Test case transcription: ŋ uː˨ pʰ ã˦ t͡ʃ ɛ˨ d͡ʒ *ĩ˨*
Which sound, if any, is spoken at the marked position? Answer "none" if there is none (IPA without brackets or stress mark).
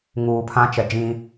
ĩ˦